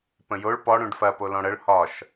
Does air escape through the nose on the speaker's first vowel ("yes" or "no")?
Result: yes